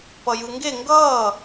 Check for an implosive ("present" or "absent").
absent